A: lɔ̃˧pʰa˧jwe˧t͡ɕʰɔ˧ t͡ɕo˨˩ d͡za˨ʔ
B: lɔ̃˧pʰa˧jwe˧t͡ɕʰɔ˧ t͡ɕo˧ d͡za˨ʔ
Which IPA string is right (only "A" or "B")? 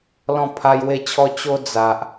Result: B